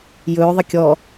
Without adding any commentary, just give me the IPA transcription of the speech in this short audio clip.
j ɵː ðˤ ə kʲ ɔ

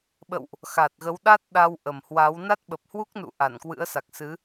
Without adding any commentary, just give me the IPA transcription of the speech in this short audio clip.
ɓ ə̰˧˨ w ʔ | x a˨˩ t̚ ɣ ə˨˦ w ɗ a˦˥ t̚ ɗ a˧ w ʔ ə˨˩ m h w a˨˦ w n a˦˥ t̚ ɓ ə˨˩ p̚ h w u˦˥ k̚ n ṵ˧˨ ʔ a˧˩ n k w ɨ̰˧˥ ə̯ s a˨˩ k̚ s ɨ˨˦

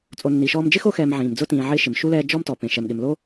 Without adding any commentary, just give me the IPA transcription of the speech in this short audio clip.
t͡sʼ o˨ nː i˩ ʃ ɔː˦ m d͡ʒ ɪ˥ x o˦ x ɛː˨ m ʕ ĩː˩ m d͡z ʊ˦ t ĩː˨ ʕ ɪː˦ ʃ ɪ˩ m ʃ u˥ l ɛː˦ d͡ʒ ɔ˥ m t ɔ˩ p ẽ˨ ʃ ɛ˨ m ɠ ɪ˨ m l o˥

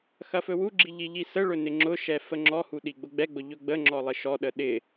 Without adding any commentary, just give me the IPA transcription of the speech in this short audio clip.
x ɐ f ɵ w u ɡ͡ǁ i ʎ i ʎ i s ə ɭ ɵ n ɪ ŋ͡ǁ ʊ ʃ ɛ f ə ŋ͡ǁ ɔ h u ɗ i ɡ͡b ʊ ɡ͡b ɛ ɡ͡b ʊ ʎ ɵ ɡ͡b ə ŋ͡ǁ ɔ lˠ ɪ ʃ ɔ ɗ ə ɗ ɪ

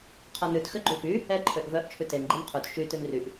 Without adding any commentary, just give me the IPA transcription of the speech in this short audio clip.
qʰ ɔ n ʉ t x ø ɡ͡ǃ u f y | ɛ ǃʰ ø ʔ v œ ʔ t͡ʃʰ ʉ t e n ɡ͡ǃ e n qʰ u t ʃ y t ʉ n r y ʔ

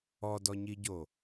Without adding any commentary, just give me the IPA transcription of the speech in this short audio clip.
ɔ d ɔ ɲ i ɟ o

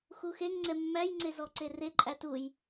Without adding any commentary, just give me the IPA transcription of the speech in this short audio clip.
x u x e ŋ ŋ͡ǀ ɛ mː æ j ŋ͡ǀ e z ɔ ǀ e r e ǃʼ æ t u j

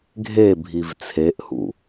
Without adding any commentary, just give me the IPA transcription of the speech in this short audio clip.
ɡʱ e bʱ i v t͡sʰ e ʔ h ṵ

